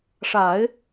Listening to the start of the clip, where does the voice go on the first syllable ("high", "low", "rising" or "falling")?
low